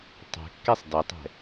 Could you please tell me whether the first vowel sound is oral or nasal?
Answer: oral